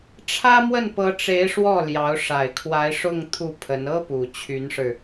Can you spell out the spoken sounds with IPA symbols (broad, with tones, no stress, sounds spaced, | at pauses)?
ʈ͡ʂʰ ä˥ m w ə˥˩ n p ɤ˧˥ ʈ͡ʂ e˧˥ ɪ̯ ʂ w ɔ˥˩ l j ɑ˧˥ ʊ̯ ʂ a˨˩ ɪ̯ kʰ w a˧˥ ɪ̯ ʂ ʊ˥˧ ŋ t̪ʰ u˥˩ pʰ ə˧˥ n ɤ˥ p u˨˩ t͡ɕʰ y˧˥ n ʂ ɻ̩˧